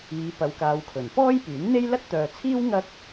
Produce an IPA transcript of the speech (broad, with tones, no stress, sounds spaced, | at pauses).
iː˨˧ p ɐ˨˧ w k aː˨˧ w kʰ ɵ˨˩ n p ɔː˥ j p yː˨˥ n n̪ e˥ j l ɐ˥ t̚ t̪ œː˨ t͡sʰ iː˥ w ŋ ɐ˥ k̚